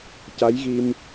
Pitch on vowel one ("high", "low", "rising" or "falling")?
rising